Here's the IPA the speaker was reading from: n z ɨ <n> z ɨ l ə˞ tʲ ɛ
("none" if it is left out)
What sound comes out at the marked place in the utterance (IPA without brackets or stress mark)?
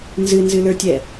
n